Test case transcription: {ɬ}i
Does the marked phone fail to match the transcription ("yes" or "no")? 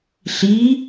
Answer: no